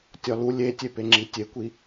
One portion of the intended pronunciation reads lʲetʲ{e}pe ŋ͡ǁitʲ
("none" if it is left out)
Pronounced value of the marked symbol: e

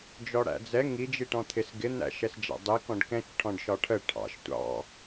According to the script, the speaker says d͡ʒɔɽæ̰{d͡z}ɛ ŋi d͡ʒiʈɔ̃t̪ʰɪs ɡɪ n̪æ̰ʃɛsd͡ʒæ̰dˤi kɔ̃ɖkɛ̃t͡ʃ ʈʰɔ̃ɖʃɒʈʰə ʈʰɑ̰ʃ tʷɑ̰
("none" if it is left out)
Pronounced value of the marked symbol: d͡z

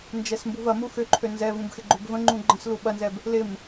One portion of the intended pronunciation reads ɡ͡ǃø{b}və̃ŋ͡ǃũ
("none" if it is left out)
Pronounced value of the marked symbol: b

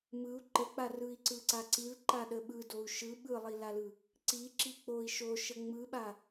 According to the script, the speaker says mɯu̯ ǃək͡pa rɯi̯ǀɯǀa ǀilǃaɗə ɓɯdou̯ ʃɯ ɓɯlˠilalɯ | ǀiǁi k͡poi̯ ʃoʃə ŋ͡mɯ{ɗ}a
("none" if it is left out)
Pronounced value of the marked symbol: ɓ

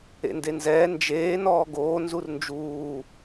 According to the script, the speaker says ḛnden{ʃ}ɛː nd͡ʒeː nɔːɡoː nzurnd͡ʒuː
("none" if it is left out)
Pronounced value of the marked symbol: z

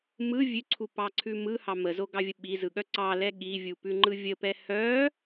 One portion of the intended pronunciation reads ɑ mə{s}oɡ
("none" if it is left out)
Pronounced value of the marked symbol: z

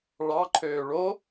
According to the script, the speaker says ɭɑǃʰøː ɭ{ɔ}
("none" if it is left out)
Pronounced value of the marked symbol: o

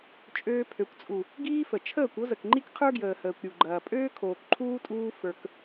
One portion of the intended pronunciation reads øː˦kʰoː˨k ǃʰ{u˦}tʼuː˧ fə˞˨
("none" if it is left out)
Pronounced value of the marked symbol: uː˦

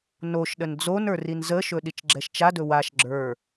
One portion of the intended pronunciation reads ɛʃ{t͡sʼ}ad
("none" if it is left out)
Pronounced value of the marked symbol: t͡ʃ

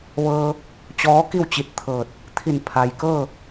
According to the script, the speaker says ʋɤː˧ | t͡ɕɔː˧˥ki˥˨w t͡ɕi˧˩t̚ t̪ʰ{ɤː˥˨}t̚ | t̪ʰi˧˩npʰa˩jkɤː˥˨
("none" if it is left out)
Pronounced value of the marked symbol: ɤː˧˩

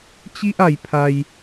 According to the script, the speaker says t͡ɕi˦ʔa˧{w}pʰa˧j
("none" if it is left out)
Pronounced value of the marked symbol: j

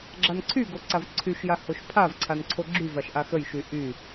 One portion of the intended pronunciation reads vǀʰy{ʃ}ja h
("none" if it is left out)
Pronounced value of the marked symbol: ʃ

